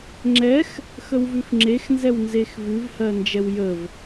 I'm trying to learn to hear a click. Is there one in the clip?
yes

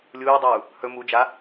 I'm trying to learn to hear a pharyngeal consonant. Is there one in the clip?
no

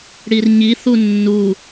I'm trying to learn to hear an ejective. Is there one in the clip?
no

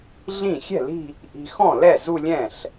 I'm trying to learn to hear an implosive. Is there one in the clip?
no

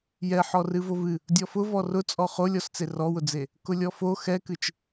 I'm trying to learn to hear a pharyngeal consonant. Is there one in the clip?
yes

